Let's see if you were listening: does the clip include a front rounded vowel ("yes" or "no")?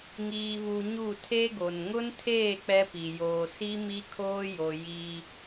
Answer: no